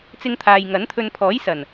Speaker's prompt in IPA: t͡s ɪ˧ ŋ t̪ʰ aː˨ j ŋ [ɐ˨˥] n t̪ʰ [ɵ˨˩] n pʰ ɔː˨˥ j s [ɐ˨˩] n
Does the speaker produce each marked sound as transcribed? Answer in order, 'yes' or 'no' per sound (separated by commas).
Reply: yes, no, yes